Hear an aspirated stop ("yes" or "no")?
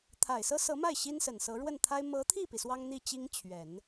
yes